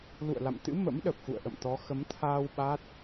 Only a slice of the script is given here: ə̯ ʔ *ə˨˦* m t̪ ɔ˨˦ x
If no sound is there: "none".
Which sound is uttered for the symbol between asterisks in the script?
ə̰˧˨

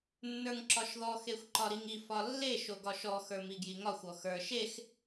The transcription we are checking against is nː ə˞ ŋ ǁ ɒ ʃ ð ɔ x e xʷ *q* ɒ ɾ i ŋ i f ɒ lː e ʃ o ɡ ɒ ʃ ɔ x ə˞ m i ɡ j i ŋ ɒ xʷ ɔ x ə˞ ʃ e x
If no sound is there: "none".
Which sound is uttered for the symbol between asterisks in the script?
ǃ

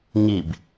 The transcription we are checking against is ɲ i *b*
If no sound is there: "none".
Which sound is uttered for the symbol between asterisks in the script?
b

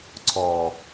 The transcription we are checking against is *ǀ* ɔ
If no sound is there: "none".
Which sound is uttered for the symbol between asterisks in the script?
ǀ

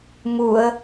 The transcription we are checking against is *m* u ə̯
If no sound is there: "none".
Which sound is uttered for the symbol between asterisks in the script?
m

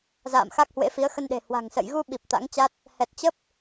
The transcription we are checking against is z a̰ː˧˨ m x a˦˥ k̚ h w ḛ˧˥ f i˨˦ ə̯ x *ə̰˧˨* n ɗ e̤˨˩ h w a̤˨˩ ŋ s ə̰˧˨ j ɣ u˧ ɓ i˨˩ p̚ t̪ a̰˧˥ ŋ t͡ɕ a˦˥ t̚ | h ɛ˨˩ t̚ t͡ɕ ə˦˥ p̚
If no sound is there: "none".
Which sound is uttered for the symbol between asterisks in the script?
ə˧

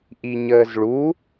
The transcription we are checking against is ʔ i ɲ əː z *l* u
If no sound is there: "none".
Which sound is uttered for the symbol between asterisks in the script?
ɭ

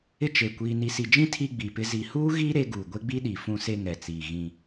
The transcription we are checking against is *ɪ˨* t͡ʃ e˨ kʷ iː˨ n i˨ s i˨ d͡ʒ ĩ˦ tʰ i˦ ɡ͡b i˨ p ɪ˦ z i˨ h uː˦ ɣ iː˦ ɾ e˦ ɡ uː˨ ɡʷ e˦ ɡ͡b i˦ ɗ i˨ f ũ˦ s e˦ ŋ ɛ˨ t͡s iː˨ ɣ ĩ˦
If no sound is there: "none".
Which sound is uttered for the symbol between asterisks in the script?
ɪ˦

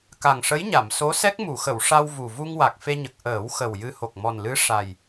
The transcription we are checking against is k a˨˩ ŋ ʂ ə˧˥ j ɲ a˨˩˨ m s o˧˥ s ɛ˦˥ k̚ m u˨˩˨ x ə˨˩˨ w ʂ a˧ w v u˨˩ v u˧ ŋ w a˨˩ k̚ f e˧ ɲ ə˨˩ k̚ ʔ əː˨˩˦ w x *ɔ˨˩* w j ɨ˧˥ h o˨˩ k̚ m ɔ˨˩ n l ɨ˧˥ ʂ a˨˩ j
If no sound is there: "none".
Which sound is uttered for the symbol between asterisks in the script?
ə˨˩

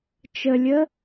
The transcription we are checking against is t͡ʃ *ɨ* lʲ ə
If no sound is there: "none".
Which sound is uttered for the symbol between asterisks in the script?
ə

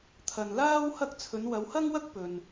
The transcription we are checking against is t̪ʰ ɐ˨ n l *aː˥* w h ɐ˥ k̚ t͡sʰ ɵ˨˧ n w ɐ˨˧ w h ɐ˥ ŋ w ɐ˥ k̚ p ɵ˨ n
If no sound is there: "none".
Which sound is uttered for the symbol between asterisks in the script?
aː˥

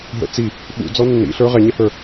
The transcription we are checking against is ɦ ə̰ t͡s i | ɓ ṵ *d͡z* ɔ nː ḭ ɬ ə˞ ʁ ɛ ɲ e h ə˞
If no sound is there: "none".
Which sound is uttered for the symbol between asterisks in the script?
d͡z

